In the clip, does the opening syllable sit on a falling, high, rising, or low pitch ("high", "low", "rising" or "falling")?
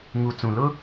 low